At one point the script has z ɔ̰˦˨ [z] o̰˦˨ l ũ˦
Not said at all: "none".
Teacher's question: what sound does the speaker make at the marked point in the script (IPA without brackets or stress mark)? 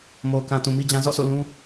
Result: s